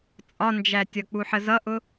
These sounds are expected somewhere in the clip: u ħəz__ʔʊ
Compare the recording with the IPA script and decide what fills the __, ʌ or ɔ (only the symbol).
ʌ